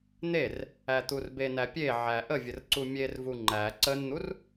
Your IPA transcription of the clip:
n̪ e r | æ t̪ u r b e n æ pʲ e ʕ æ ʔ ə vʲ ə r ǀ u mʲ e r v u ŋ͡ǃ æ ǀ ə n n̪ u r

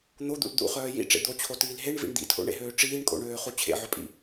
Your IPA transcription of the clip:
n̪ o d̪ ṵ l d̪ ṵ χ œː j ḭ ʈ͡ʂ ḛ d̪ o t͡ɕʰ o t iː l ɦ e ɳ v ḭ ɳ d̪ ḭ tʰ o̰ ɳ ḛ ɦ øː ʈ͡ʂ iː ɳ kʼ o̰ ɳ øː χ u t͡ɕʰ ḛ ʕ œ pʼ ḭ

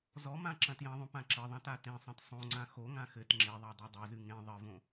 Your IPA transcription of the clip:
z ɔ m ã ǁ ɐ̃ t j ɐ̃ ðˤ õ p ã ǁ ɘ ðˤ ã t a t ẽ sˤ ɐ̃ t sˤ õ ŋ͡ǀ ã x o ŋ ã x ɘ t ŋ͡ǁ e ðˤ a dˤ a dˤ o z ɨ ŋ ẽ ðˤ ɘ v õ

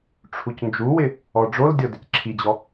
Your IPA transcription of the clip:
ʈ͡ʂʰ u c n d͡ʒ u w ɪ | ɔ ɖ͡ʐ o l dʲ ɔ d ɪ c ǁʰ i d͡ʑ ɔ

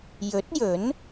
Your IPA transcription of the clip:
j ɵ˨˥ t̚ j ɵ˨˥ n

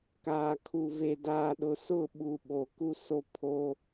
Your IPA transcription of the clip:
k aː˨ kʰ u˨ v e˨ d aː˨ ɗ ʊ˨ s ʊ˦˨ ɓ u˨ ɓ o˨ k u˦ s o˦ pʰ o˦

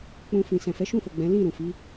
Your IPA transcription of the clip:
k͡p ũ˧ f ĩ˨ s ɛ̃˨ f ɛ˨˦ ʃ ũ˦˨ f o˨ ɡ͡b ɛ̃˨˦ l ĩ˦˨ ɾ ũ˨ f i˨˦

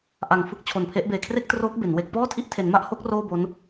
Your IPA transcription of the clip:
ʔ a˨˩ ŋ f ɯ˦˥ k̚ t͡ɕʰ o˨˩ n pʰ e˦˥ ʔ b eː˨˩ kʰ r e˥˩ k̚ t r oː˦˥ k̚ b e˩˦ n w e˥˩ k̚ p ɔː˥˩ tʰ i˦˥ ʔ tʰ e˩˦ n m a˦˥ ʔ h o˦˥ k̚ r oː˥˩ b o˦˥ n

